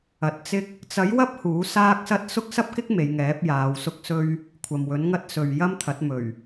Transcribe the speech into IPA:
ɐ˨˥t̚t͡sɪ˥k̚ | t͡sɐ˨˥jwɐ˥p̚ huː˨˥saː˥k̚sɐ˥t̚ sʊ˥k̚sɐ˥p̚kɪ˥k̚ me˨˧jŋɛː˨˥p̚ jaː˨˧wsʊ˥k̚sɵ˥ɥ | kʷʰɐ˨mwɵ˨˥nŋɐ˥t̚ sɵ˨ɥjɐ˥mt̪ʰɐ˨˥t̚ mɵ˨˩ɥ

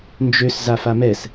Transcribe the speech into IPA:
nd͡ʒøs zafamɛs

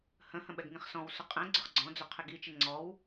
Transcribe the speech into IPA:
hə̃hə̃ ɓɛɡŋĩχsɔ̃wsʊ qʼɛ̃ ɡ͡ǀʊχɡ͡ǀɔ̃d͡zʊ qʰɪɡit͡ʃɪ ŋ͡ǀɔw

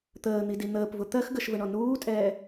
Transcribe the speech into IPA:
t̪əːn̪idi n̪əːpvʊ t̪ɜx ɡəʃvəɳɔ nuːtʼɛː

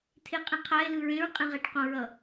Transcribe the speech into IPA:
tʰeqʼĩqʰae̯ lɯɹẽɹ qʼĩʁɛʈqõɹʌ

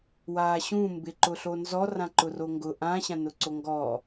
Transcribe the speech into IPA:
waːɕũ mbɪ ǃʊɬonzɔ rãǃʊroŋɡʊ ʔãɕã nʊǀoŋɡɔː

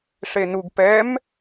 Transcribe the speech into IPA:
ʂenuɡ pɛm

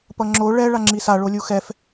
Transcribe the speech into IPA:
pʌŋ͡ǁo ɭɛ ɭaŋ͡ǁisa ɭolʲuxɛf

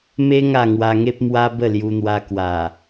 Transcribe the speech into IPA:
me˦ ŋa˥˧ŋwa˧ŋe˦p̚ mwa˦ bə˥˧lju˧n̪wa˧ kwa˨˩

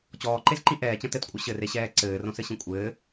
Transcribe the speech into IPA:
t͡ɕɔːǃezǃĩ ʔɛːt͡ɕɐ̃ tɘtkʷʼɘ ɕɘreɕɛː ǀɘːrõsɘɕĩ kʷʼɘː

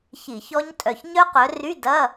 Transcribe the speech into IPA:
çi˧˩˧çɔ˦˥ɲtʼœ˧˩ç ɲœ˦˥qœ˨˦ry˧˥˧ dɐ˧˥˧

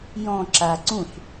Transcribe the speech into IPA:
jɔ̃ ǁa ǀũɬ

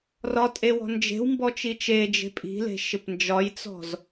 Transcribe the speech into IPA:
rɒtʼewɔ̤ nd͡ʒe̤w mbɔt͡ʃit͡ʃe d͡ʒe̤pʼi̤le̤ ʃɪpnd͡ʒɒjt͡sɔ̤z

